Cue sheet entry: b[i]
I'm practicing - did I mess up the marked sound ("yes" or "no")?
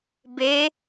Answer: yes